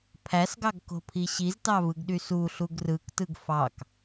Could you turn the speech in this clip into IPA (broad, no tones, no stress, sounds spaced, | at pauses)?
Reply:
pʰ æ s ɡ ɑ ɡ k o̤ pʰ i ɕ i z t ɑ v ɯ ɡ ɗ y s u ɬ u ɡ r ɯ k t ɯ ɡ f ɑ k